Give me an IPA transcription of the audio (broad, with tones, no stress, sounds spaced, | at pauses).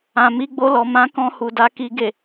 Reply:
ã˨ m i˧ ɡ͡b o˧ l ɔ˨ m ã˨˦ k ɔ̃˧ h u˨ d a˨˦ k i˧ ɡ e˨